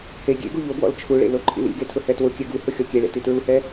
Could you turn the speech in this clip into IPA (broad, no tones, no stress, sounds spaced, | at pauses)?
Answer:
h e ɡʲ ḛ ɡ u ʎ o ɡ w ɔ̰ l t͡ʃʰ u ɭ ḛ l o ǃʰ ḭ l ḭ ɡ e tʰ ʊ h ɛ t w ʊ kʲ ɛ ɡ u h ʊ xʲ ɔ kʲ e ɭ ḛ t i t ɹ u h ɛ